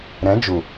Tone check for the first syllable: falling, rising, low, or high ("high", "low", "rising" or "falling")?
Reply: rising